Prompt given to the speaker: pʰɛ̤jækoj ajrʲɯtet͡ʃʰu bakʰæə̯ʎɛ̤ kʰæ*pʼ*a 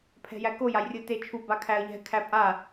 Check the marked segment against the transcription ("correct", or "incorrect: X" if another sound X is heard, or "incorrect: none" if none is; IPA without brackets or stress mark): correct